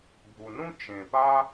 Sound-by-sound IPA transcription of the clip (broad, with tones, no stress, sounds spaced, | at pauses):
bʱ u˨ n ũ˥ t͡ʃ ẽ˨ p a˥